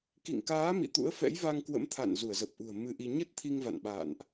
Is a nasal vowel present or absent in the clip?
absent